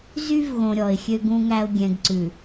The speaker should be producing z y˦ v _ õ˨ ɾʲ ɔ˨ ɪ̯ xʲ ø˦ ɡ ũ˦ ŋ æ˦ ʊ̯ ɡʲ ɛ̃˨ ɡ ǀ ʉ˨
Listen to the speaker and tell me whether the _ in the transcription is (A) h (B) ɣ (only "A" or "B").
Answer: B